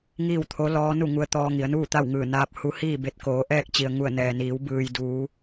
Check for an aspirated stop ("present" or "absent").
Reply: present